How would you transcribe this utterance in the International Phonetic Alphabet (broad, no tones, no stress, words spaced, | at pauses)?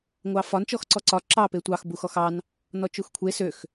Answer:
ŋʷɑfɒn t͡ʃɔxǀɔǀɒ ǁɑ petʷɑx buxɔxɑn | nɔt͡ʃuxkʷʰe søx